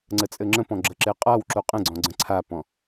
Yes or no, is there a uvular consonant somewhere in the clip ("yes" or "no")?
yes